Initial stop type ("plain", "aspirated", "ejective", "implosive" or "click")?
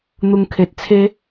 aspirated